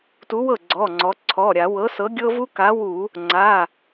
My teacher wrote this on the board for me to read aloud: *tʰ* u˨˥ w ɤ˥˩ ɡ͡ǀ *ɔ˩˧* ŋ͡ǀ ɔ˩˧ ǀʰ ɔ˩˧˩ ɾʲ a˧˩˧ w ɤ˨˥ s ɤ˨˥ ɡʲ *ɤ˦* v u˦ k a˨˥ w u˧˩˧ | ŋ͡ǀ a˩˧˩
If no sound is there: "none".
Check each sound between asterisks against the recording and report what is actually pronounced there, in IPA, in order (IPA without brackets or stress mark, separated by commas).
t, ɔ˩˧˩, ɤ˦